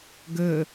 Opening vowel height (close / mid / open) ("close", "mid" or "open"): mid